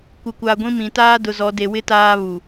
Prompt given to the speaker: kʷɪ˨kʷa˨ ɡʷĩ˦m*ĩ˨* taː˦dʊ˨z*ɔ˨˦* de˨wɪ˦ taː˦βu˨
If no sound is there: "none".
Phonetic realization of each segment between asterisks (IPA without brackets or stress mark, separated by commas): ĩ˨, ɔ˨˦